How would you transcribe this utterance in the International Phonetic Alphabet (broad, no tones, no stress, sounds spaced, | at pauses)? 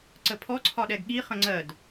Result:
ǀ ə pʰ ɔ ǀʰ ɒ ɗ ɛ ɡ ɠ i χ ə̃ ŋ͡ǀ ɜ d